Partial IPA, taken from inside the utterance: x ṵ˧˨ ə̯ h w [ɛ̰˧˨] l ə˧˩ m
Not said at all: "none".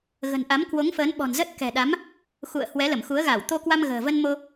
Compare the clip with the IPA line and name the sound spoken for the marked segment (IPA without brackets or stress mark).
ɛ˨˦